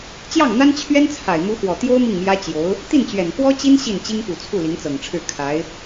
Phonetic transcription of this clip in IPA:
t͡ɕ j ɑ˥˩ ŋ n̪ a˥ n t͡ɕʰ ɥ ɛ˥ n t͡sʰ a˨˩ ɪ̯ m u˧˥ x w ɔ˨˩ t̪ j o˥ ʊ̯ m i˥˩ ŋ m j ä˥ t͡ɕ j o˧˥ ʊ̯ | t̪ i˥˩ n t͡ɕ ɥ ɛ˨˩ n k w ɔ˥ t͡ɕ i˥ n ɕ i˥˩ n t͡ɕ i˥ ŋ p u˨˩ t͡sʰ u˥˩ l i˧˥ ŋ t͡s ɤ˨˩ ŋ ʈ͡ʂʰ ɻ̩˥˩ kʰ a˧˥ ɪ̯

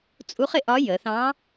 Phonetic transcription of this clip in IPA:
t͡sʼ u˧˥ χ ɪ˧ ʔ ɒ˧˥ j ə˩˧ θ ɑ̃˧˥

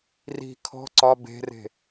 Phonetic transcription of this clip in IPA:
r i̤ kʰ ɔ̤ ǀ ɒ b e̤ r e̤

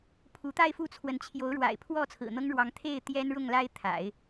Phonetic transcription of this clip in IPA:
pʰ u˧˥ t̪ a˥˧ ɪ̯ f u˥˩ t͡sʰ w ə˧˥ n t͡ɕʰ j o˧˥ ʊ̯ ɻ w a̰˨˩ ɪ̯ pʰ w ɔ˥˩ t͡sʰ ɹ̩˨˩ n̪ ɤ˥ ŋ ɻ w ɑ˧˥ ŋ t̪ʰ e˥˩ ɪ̯ t̪ j ɛ˥ n ɻ ʊ˥˩ ŋ l a˥ ɪ̯ t̪ʰ a̰˨˩˦ ɪ̯

